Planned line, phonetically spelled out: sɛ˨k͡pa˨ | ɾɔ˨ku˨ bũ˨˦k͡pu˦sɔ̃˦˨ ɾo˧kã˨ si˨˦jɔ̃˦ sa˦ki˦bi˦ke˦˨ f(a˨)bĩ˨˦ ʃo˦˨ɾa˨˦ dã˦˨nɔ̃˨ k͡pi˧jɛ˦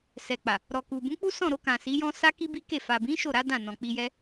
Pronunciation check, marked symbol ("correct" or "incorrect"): correct